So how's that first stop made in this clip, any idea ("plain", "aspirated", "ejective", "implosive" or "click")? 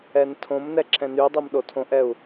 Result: aspirated